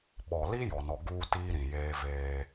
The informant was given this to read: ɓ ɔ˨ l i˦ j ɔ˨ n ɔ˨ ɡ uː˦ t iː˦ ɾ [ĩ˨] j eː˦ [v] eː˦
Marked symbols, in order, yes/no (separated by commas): yes, yes